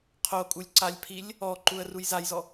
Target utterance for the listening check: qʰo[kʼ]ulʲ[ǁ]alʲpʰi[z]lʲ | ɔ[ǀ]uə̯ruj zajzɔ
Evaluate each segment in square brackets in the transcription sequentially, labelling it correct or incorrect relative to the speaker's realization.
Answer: correct, incorrect, incorrect, incorrect

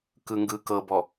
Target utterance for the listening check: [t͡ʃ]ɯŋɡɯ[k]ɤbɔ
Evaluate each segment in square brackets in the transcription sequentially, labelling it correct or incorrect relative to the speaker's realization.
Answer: incorrect, correct

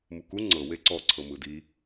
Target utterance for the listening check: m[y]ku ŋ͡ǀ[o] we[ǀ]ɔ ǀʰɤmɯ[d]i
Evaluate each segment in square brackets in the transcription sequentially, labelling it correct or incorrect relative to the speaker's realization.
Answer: incorrect, incorrect, correct, correct

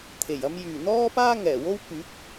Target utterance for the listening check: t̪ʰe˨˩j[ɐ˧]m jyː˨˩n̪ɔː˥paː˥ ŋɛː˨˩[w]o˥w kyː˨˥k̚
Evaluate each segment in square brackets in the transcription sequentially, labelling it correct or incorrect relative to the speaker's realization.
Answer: correct, correct

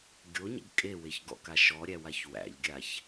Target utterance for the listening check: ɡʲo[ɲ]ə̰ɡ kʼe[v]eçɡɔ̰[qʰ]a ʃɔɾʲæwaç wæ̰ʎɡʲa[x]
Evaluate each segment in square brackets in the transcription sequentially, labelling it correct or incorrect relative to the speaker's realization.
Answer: correct, incorrect, incorrect, incorrect

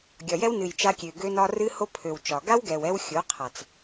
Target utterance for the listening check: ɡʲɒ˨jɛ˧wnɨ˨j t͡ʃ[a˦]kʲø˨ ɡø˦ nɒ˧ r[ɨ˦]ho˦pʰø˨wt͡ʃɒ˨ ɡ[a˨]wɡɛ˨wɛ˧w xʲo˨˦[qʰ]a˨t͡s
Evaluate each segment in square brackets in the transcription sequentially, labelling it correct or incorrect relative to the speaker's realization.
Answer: incorrect, correct, incorrect, correct

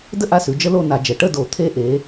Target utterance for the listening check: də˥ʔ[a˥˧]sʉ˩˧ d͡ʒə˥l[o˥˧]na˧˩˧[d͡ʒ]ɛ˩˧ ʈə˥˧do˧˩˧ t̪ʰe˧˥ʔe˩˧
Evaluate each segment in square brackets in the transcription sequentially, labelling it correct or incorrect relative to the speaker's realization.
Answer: incorrect, correct, correct

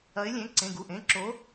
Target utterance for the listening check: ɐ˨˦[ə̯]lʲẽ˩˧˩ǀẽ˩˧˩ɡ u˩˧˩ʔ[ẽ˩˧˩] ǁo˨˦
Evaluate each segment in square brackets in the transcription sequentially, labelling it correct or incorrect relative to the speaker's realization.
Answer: incorrect, correct

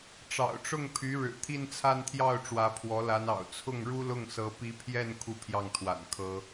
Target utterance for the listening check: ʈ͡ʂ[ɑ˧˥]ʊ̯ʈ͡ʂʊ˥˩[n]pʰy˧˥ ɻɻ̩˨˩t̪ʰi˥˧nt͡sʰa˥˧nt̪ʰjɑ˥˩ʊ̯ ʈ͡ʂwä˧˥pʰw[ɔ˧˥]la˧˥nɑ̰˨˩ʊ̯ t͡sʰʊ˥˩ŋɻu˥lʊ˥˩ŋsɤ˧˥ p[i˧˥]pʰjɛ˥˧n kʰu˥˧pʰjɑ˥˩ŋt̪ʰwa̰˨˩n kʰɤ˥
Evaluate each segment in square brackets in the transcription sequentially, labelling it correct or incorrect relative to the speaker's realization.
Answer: incorrect, incorrect, correct, correct

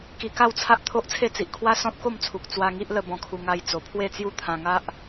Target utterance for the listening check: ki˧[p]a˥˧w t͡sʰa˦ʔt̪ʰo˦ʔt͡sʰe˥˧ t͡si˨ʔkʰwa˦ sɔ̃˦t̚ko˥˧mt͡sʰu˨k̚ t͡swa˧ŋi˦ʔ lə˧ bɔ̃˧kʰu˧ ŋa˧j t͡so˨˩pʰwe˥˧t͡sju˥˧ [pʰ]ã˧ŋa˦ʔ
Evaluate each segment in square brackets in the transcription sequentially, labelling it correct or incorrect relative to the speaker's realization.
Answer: incorrect, incorrect

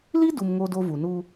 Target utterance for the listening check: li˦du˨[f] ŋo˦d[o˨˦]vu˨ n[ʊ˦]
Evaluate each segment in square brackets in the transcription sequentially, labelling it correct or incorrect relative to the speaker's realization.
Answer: incorrect, incorrect, incorrect

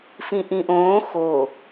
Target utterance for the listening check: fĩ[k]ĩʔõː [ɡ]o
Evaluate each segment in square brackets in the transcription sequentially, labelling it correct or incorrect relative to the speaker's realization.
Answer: incorrect, incorrect

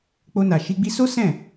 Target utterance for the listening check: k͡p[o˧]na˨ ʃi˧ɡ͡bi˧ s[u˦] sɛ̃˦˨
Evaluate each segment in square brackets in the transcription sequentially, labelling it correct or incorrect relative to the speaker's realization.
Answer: correct, incorrect

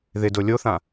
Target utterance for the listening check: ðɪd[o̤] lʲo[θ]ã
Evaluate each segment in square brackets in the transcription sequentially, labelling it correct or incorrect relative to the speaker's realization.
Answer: incorrect, correct

